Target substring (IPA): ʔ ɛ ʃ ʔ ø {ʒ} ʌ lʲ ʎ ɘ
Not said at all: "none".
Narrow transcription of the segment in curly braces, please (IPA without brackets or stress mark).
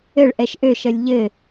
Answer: ʃ